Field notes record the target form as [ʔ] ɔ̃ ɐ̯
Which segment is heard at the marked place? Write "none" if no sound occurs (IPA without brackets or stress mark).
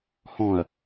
h